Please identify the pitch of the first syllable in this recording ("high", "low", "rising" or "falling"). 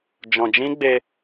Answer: low